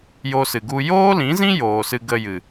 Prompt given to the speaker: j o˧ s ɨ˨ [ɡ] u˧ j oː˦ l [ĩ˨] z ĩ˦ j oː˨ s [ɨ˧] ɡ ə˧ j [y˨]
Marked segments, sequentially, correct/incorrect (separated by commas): correct, incorrect, correct, incorrect